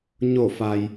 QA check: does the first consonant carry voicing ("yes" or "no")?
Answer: yes